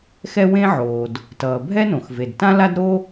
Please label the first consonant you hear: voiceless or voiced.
voiceless